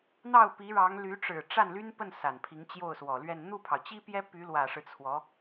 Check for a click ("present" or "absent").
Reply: absent